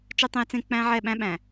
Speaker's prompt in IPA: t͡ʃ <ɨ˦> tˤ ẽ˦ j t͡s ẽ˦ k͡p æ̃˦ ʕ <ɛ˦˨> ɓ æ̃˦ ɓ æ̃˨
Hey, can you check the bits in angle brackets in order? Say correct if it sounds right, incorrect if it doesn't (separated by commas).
correct, correct